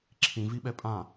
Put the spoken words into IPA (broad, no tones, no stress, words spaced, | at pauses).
ǁʰĩviɓɛ pʼã